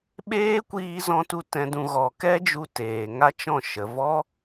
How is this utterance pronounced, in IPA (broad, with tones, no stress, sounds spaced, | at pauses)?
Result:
ɓ eː˦ kʷ iː˧ z ɔ̃˧ t u˧ t ɛ̃˨ d ũ˨ ɣ ɔ˨ k ɛ˦ d͡ʒ u˧ t eː˨ ŋ a˦ t͡ʃ ɔ̃˦˨ ʃ ə˨ v ɔ˦